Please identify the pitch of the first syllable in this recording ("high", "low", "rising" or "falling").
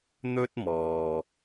high